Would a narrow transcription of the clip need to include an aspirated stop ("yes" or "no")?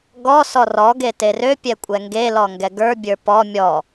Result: no